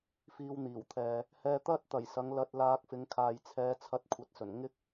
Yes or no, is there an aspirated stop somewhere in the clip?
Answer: yes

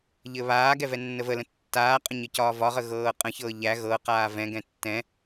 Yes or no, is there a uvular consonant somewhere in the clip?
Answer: yes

